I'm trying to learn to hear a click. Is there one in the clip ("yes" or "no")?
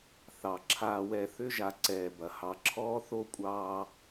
yes